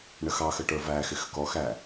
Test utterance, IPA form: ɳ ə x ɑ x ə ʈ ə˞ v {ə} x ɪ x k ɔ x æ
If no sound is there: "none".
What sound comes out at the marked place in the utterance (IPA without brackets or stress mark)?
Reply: æ